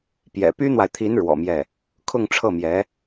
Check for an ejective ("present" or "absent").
absent